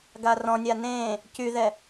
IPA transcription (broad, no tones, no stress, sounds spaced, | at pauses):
ɡ a r ɔ̃ nʲ a n ẽ | c y ð ɛ